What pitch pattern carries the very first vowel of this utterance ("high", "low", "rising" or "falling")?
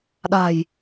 low